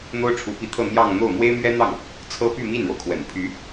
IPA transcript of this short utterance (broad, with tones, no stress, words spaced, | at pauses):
n̪o˥ʊ̯ʈ͡ʂʰu˧˥pi˧˥t̪ʰɤ˥˧ n̪jɑ˥˧ŋn̪o˥˩ʊ̯ mwe˥ɪ̯mɥɛ˥n̪ɑ˥˩ŋ | t͡sʰɤ˥ py˥˧mi˥˩nɻo˩ʊ̯kʰwə̰˨˩n pʰy˧˥